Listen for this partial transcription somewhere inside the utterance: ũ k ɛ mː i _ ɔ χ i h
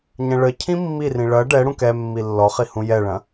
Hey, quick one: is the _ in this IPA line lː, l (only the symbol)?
lː